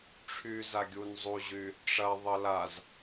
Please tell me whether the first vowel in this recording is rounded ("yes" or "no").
yes